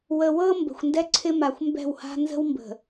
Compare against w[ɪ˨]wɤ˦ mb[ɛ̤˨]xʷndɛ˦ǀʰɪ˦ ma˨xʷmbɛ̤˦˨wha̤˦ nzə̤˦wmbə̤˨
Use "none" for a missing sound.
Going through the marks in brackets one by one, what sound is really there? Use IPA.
ə˨, ə̤˨

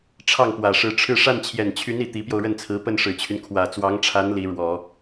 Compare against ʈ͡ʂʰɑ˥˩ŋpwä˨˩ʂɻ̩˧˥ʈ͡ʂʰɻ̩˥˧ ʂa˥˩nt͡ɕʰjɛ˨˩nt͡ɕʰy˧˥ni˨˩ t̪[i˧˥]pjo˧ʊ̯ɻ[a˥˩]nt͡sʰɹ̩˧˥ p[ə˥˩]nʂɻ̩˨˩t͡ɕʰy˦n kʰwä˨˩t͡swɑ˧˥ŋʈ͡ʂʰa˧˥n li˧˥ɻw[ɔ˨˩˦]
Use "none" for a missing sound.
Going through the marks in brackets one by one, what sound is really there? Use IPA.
i˧˥, ə˥˩, ə˥˩, ɔ˨˩˦

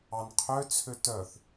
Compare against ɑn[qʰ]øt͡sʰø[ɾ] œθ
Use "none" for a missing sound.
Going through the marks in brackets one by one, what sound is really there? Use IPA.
qʰ, t

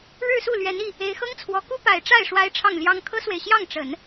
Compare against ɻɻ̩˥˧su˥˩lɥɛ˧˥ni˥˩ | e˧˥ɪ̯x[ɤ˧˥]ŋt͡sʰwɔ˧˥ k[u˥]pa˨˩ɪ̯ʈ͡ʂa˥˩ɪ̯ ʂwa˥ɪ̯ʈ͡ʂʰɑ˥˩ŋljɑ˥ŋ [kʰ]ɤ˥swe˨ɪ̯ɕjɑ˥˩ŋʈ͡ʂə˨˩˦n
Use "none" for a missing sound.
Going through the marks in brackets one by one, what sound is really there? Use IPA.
ɤ˥, u˥, kʰ

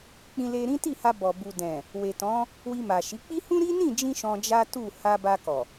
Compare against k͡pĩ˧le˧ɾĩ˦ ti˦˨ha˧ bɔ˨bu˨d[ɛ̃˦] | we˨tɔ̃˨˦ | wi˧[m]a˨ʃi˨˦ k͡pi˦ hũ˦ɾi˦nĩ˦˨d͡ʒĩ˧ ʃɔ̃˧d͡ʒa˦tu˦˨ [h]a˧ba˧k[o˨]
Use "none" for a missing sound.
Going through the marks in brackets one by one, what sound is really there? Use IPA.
ɛ̃˨, m, h, ɔ˨

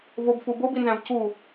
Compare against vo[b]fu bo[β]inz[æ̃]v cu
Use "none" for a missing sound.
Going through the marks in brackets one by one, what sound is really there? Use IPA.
b, b, æ̃

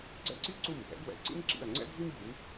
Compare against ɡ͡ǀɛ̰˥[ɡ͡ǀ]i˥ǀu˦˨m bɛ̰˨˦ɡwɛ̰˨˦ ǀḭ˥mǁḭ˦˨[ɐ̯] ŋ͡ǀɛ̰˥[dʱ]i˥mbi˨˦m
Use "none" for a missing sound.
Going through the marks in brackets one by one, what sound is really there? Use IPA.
ǀ, ɐ̯, dʱ

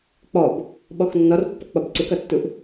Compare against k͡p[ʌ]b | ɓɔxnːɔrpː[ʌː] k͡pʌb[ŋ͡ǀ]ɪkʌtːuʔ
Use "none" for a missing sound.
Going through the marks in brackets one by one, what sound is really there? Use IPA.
ɔ, ʌ, ǀ

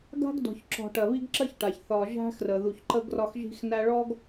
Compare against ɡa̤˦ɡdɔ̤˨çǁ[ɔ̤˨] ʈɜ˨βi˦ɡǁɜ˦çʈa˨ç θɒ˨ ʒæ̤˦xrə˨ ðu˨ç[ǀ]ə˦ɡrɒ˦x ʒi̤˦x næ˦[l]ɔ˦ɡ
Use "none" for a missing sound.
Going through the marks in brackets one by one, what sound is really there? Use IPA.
ɔ̤˨, ǃ, ɭ

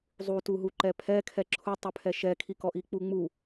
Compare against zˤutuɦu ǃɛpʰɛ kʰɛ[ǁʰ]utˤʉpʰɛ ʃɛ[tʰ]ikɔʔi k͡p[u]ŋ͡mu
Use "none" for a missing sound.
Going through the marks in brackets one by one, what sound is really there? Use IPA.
ǁʰ, kʰ, u

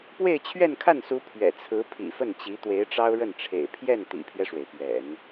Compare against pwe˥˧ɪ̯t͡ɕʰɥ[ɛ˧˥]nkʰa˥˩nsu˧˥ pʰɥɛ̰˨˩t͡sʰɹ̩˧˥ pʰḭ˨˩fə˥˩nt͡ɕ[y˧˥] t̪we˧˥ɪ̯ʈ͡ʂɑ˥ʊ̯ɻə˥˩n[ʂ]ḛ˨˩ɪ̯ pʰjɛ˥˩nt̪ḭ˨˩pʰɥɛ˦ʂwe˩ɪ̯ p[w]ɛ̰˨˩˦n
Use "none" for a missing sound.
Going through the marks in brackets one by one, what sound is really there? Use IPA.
ɛ˥˧, i˧˥, ʈ͡ʂʰ, ɥ

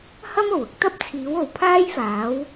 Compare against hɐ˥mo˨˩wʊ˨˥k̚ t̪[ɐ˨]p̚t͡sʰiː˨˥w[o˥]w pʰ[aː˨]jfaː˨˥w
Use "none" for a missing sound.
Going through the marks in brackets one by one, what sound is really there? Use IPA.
ɐ˥, o˨, aː˥

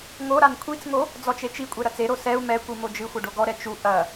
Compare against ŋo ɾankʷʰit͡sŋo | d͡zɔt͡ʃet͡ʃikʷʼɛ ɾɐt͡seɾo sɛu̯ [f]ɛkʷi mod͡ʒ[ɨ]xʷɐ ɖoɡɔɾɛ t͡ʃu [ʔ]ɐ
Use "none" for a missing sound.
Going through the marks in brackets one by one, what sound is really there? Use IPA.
m, ɨ, ʔ

